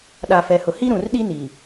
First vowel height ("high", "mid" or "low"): low